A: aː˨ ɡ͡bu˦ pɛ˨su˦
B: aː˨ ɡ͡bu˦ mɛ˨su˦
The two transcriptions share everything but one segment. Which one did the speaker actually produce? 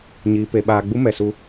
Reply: B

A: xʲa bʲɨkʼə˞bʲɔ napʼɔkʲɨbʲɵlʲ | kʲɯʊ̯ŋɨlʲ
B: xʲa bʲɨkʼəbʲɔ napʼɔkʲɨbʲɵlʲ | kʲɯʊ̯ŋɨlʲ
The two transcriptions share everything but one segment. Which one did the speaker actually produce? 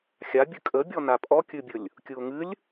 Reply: B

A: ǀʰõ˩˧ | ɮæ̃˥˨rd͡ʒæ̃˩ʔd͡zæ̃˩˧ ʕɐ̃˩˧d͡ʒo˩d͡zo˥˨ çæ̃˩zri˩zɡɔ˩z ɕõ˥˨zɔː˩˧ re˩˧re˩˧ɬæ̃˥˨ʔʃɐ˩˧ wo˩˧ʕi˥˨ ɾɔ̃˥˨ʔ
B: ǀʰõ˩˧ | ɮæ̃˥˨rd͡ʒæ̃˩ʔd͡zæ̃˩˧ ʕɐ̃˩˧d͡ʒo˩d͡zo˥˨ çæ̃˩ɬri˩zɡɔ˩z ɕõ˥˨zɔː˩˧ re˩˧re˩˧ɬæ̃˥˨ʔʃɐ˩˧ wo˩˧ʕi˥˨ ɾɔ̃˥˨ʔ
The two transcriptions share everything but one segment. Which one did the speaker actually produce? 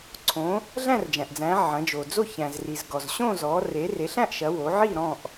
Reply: A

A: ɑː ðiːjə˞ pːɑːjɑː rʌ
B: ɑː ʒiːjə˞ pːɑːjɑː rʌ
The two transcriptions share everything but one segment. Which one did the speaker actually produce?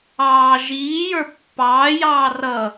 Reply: B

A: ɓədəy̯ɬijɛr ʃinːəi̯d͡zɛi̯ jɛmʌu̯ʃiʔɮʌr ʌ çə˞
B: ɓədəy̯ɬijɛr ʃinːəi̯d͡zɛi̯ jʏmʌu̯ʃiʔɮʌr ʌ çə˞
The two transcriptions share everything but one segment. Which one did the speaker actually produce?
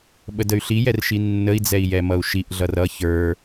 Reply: A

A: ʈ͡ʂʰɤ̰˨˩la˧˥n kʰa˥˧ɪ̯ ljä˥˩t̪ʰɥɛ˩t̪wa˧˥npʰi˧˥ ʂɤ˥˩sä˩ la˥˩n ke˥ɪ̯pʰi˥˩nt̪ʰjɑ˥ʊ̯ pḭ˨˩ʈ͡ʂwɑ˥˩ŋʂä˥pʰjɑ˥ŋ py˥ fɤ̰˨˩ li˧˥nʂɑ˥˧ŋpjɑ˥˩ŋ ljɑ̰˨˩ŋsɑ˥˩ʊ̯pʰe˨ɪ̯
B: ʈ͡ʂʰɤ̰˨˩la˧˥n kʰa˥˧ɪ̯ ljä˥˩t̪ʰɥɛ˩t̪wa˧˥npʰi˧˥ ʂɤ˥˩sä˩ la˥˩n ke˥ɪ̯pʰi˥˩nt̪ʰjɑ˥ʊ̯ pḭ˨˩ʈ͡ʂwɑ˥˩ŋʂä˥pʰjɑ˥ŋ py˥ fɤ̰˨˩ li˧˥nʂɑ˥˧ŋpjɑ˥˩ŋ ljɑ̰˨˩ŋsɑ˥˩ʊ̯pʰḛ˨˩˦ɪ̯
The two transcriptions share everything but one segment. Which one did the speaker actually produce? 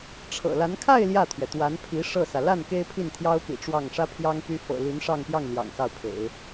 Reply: B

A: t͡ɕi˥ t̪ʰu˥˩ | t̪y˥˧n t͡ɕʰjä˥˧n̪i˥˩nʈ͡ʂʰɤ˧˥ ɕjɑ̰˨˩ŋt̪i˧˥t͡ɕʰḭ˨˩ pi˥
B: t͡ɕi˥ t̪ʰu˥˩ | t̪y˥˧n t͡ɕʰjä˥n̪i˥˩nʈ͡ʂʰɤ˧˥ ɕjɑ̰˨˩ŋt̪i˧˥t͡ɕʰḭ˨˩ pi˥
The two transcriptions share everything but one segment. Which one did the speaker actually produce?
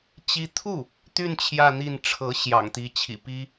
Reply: A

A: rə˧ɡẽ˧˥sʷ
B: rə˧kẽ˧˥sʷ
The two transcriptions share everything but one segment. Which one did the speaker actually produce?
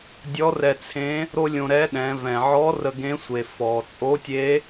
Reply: A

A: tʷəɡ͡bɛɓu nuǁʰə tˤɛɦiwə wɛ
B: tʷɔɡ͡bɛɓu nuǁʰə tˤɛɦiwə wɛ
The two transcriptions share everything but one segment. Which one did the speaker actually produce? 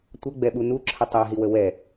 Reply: A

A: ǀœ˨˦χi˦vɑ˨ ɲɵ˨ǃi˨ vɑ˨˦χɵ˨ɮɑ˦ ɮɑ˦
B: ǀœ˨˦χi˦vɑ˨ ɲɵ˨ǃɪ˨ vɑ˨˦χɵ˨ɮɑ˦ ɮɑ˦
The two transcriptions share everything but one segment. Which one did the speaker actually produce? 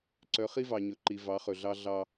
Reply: A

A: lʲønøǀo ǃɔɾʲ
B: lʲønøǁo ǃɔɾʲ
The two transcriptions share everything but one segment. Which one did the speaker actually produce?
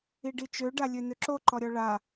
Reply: B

